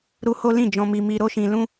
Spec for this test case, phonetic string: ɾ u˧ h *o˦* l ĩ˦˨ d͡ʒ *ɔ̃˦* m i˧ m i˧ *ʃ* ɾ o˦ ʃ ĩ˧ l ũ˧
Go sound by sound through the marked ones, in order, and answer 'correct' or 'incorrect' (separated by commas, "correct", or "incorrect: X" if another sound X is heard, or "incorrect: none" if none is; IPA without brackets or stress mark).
correct, incorrect: ɔ̃˧, incorrect: none